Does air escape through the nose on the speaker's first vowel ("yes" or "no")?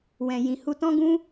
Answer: yes